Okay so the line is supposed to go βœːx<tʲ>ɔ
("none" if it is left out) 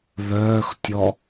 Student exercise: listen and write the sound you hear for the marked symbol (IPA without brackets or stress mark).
tʲ